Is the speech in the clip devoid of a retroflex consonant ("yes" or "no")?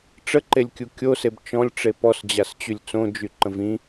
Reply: no